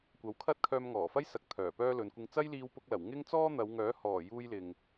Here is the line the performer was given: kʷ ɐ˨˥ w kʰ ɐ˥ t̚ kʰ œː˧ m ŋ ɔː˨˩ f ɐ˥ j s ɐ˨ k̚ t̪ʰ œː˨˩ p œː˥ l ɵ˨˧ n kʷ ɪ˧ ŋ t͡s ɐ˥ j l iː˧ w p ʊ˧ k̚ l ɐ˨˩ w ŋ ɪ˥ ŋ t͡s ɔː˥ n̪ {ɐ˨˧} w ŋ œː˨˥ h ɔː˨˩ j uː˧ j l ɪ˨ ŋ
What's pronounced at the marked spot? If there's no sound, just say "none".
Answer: ɐ˨˧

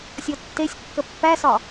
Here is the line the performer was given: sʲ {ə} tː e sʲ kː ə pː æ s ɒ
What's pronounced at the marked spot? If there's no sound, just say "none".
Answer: ɔ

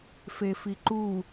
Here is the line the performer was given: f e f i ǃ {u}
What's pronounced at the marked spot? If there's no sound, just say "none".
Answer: u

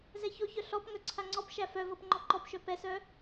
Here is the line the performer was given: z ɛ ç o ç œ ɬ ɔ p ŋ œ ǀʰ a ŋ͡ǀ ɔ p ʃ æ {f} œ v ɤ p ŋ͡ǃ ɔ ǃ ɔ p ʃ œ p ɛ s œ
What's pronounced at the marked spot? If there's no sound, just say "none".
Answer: f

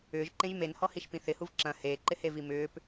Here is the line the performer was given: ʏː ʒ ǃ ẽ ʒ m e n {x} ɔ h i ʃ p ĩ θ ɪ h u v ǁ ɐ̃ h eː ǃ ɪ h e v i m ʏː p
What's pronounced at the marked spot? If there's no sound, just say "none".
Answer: h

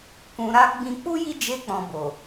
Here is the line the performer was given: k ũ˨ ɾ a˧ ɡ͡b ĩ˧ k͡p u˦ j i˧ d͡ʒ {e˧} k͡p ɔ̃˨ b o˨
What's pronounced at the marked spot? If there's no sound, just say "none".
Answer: e˧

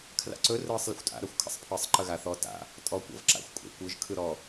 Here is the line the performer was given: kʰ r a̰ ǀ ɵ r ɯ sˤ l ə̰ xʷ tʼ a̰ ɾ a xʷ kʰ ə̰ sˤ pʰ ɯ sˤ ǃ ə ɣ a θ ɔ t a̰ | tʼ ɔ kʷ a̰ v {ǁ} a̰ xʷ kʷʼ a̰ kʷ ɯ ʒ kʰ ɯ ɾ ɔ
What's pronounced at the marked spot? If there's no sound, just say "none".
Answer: ǁ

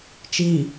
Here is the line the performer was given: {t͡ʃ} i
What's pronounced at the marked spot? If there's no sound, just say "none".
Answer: t͡ʃ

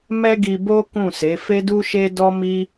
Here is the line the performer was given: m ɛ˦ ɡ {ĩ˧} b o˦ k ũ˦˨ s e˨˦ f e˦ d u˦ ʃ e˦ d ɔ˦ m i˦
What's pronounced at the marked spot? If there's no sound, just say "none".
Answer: i˧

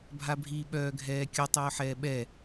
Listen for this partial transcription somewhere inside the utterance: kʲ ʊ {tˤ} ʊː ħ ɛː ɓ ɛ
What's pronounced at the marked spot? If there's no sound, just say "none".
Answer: tˤ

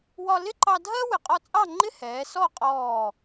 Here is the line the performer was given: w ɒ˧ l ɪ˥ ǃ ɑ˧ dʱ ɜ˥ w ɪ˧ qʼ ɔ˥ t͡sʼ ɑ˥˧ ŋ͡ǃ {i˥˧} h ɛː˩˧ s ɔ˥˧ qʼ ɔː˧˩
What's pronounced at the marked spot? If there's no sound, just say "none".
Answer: ɪ˥˧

